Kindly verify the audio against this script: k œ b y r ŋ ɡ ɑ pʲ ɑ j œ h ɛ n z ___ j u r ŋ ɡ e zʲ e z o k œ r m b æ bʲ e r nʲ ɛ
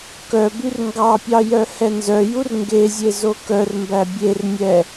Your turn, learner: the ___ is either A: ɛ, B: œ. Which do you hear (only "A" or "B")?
B